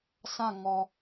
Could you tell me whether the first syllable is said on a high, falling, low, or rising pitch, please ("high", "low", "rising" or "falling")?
falling